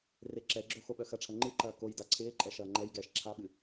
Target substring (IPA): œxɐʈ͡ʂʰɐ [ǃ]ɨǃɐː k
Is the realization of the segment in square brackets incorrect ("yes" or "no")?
yes